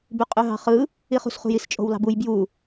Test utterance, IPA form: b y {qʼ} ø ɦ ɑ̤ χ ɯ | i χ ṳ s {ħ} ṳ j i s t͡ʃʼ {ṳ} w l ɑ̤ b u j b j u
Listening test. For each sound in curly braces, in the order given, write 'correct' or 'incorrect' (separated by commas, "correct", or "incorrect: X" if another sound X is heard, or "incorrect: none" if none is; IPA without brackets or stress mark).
correct, incorrect: χ, incorrect: o̤